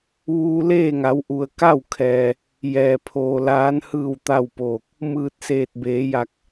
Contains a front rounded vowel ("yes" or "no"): no